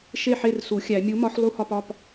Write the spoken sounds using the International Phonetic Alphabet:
ʃ e˥˩ ħ e˥˩ r s u˨˩˦ xʲ æ˨˩˦ mʲ u˨˥ m ɒ˨˥ ħ lˠ u˥˧ h ɒ˥˧ p ɒ˩˧˩ p

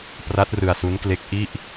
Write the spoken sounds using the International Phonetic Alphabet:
p r a˦˥ t̚ r ɯ˧ a̯ s u˦˥ n k l e˦˥ k̚ ʔ i˥˩ ʔ

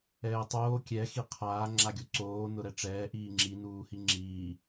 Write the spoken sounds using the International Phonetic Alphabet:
ɛː tˤ oː kʲ ɛ x i qʰ aː ŋ͡ǁ a ɡʲ o ǀ oː n ʊ ɾ ɛ ʈ͡ʂ ɛː ʔ iː ŋ͡ǁ i n uː h i ŋ͡ǁ iː

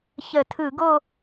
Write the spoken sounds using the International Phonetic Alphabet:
ç ə˧˩˧ tʰ ɯ˧˩˧ ɡ o˥˧

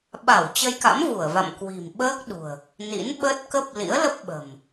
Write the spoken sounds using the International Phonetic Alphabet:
ɓ a˧˩ w t͡ɕ ə˧ j k a̰˧˥ m v u˧˩ ə̯ v a̰˧˨ m k w i̤˨˩ m ɓ əː˦˥ k̚ ɗ ṳ˨˩ ə̯ | n ḭ˧˥ n ɓ ə˦˥ t̚ k ə˦˥ p̚ l ḭ˧˥ ə̯ l ə˦˥ p̚ ɓ ə̤˨˩ m

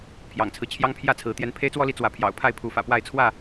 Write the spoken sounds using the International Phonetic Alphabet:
pʰ j ɑ̰˨˩ ŋ t͡sʰ ɹ̩˦ t͡ɕʰ j ɑ˦ ŋ pʰ j ä˥˨ t͡sʰ ɹ̩˨˦ t̪ j ɛ˨˦ n pʰ e˦ ɪ̯ t͡s w ɔ˦ l i˨˦ t͡s w ä˨˦ pʰ j ɑ̰˨˩ ʊ̯ pʰ a˥˨ ɪ̯ pʰ u˨˦ f ä̰˨˩ p w a˥˨ ɪ̯ t͡sʰ w ä˥˨

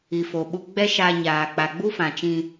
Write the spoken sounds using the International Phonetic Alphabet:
i˨ f o˨ ɓ u˧ ɡ͡b ɛ˦ ʃ a˧ ɲ aː˨ k͡p a˨ ɡ͡b u˦ f ã˨ t͡ʃ ĩ˧

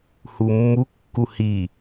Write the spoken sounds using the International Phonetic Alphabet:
h u mː u kː u h i

